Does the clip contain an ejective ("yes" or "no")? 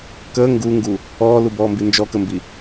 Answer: no